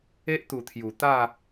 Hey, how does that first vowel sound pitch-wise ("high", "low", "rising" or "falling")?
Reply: high